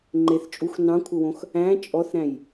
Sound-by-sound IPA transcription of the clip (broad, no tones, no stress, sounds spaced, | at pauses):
ŋ͡ǃ e θ t͡ʃʼ u x n ɑ̃ kʷʰ ɘ w õ x | æ̃ t͡ʃʼ ɔ θ ɾ æ̃ j